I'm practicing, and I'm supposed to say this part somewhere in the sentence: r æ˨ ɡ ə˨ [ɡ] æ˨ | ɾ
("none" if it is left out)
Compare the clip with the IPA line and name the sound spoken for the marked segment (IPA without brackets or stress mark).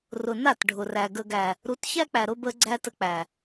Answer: ɡ